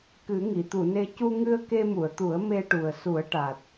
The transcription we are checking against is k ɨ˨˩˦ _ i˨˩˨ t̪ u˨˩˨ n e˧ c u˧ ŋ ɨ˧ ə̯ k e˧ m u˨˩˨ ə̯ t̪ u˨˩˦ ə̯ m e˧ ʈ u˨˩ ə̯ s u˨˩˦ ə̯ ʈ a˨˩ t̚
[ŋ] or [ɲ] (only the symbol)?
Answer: ŋ